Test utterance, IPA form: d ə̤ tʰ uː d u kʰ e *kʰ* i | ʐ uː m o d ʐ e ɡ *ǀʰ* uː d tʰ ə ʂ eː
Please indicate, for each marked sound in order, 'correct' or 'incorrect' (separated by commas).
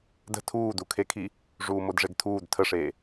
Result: correct, incorrect